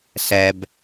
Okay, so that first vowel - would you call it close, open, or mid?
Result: mid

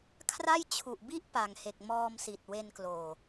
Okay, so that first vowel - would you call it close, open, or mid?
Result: open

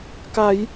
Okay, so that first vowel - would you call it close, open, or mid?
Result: open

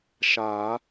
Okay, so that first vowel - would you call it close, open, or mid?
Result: open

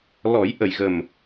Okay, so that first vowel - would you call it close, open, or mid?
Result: mid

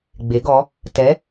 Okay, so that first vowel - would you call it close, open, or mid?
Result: mid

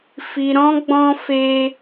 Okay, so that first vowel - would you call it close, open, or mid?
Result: close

